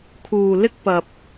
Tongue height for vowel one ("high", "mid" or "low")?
high